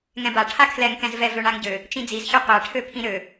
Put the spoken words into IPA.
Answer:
ŋɛ̃ba ʈʰakʰlɛŋkɛ̃zvɛ vøɳaŋɟø | t͡ʃĩd͡zizçɒ qʷaʈʰøpʰĩ ɾø

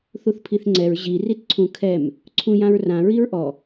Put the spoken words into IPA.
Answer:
θuθpʰiθŋ͡ǀɛɹ ʑi ritǀʰũkʰɛm | ǀʰũjãɹrã ɹiɹʔɔ

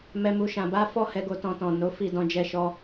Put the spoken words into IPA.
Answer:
mɛ˨mu˨ʃã˨ba˨˦ fɔ˦hɛ˧ɡo˧ tɔ̃˧tɔ̃˨ no˨˦ fi˦˨dɔ̃˨˦d͡ʒɛ˧ʃɔ˧

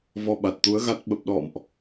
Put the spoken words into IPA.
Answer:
vɔ˧ɓa˨˩t̚t̪u˨˦ə̯ɣa˦˥t̚ ɓə˨˩p̚ɗɔ̰˧˨mʔ

